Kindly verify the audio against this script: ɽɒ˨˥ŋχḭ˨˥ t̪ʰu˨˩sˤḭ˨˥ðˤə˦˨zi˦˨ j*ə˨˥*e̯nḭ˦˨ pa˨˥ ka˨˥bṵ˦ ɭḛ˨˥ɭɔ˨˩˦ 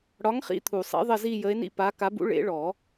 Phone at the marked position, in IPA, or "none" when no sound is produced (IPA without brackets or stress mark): ə˨˥